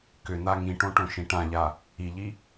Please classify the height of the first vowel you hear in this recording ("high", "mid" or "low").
high